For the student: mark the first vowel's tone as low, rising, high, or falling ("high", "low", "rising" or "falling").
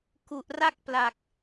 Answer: low